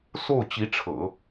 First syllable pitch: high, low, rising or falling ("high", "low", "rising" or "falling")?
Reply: falling